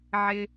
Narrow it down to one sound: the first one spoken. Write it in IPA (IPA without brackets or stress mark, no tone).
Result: ʕ